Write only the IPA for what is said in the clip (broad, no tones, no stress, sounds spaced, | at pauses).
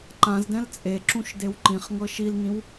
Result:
ǃ ã z d ɛ̃ l t͡sʼ e ǁ ũ ʃ d e w ǃ ĩ χ ŋ ɤ ʃ i l ŋ ĩ w